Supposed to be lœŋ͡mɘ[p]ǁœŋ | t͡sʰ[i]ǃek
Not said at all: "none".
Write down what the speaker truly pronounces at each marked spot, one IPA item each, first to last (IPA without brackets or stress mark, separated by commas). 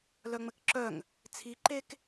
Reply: k, i